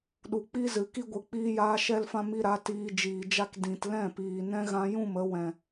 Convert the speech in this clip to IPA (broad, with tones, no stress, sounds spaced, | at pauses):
ɗ u˨ k͡p i˦ z ɨ˨ k i˦ ɡʷ ɨ˨ k͡p iː˧ j aː˧ ʃ ɛ˧ l f ã˧ m i˧ ɾ a˨˦ t iː˧ d͡ʒ iː˨ d͡ʒ a˦ k d ĩ˨ t l ɛ̃˦˨ p iː˨ n ɛ̃˦ ɣ ã˧ j ũ˦˨ m ə˧ w ɛ̃˨